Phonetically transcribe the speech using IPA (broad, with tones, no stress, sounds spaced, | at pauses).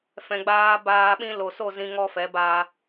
f ɛ̃˨ ɡ͡b aː˧ b aː˧ ɓ ĩ˧ l o˨ s o˦˨ z ĩ˧ ŋ ɔ˧ f ɛ˨˦ b a˧